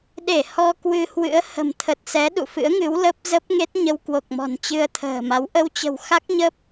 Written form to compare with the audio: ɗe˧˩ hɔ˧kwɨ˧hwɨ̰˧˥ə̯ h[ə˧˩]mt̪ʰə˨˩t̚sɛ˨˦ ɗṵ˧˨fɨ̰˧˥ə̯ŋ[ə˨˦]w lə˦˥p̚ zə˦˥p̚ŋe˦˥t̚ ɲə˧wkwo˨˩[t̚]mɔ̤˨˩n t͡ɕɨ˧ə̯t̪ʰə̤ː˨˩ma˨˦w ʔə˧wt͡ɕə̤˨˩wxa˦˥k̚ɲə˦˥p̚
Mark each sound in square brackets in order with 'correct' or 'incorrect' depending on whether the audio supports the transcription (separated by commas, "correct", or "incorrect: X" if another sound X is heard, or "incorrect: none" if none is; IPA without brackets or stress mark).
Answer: incorrect: ə̤˨˩, incorrect: ɨ˨˦, incorrect: k̚